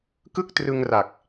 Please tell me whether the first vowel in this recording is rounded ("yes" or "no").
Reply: no